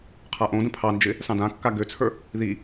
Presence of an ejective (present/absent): absent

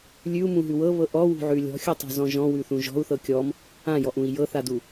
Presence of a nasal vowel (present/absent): present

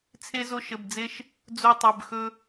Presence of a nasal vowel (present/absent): absent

